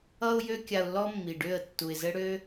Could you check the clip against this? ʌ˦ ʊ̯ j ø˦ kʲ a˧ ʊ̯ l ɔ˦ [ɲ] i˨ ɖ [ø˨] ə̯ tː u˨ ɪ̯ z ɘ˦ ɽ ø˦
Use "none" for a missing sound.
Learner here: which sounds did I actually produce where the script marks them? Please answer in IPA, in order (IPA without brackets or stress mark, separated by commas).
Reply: mː, ø˦˨